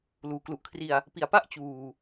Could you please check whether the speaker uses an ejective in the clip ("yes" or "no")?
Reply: no